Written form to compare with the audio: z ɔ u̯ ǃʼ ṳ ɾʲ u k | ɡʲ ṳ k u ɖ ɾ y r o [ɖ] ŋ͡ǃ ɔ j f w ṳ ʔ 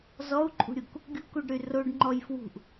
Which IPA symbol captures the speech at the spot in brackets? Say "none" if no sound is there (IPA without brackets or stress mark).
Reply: ɖ